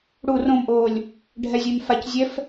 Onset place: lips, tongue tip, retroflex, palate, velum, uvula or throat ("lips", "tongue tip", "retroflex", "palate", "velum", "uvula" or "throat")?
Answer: retroflex